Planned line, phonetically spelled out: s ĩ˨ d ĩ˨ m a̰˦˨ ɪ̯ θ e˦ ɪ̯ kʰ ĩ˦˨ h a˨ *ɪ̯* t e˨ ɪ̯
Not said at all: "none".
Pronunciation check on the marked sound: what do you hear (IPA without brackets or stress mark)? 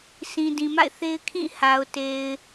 ʊ̯